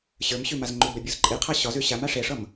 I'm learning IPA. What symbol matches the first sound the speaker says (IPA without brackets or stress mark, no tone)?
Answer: ɕ